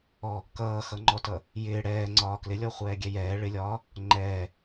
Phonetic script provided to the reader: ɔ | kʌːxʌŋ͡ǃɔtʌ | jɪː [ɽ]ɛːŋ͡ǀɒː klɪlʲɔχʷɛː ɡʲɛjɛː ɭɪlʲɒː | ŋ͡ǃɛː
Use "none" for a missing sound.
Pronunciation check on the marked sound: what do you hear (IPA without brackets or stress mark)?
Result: ɽ